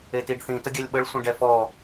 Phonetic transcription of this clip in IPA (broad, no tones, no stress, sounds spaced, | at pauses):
e t i ɖ θ ĩ t ə ɡʲ ɛ lʲ ɓ ə ɭ sʷ ə̃ ɖ ɛ f ɔ